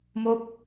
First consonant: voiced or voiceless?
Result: voiced